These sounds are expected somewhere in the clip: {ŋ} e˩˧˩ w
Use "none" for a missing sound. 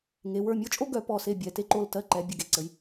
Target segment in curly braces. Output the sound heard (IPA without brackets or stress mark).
ŋ